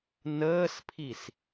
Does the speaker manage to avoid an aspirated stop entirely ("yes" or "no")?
no